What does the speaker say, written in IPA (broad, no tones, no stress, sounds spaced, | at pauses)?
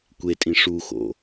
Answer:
kʷ e tʼ ĩ ʂ u x o̰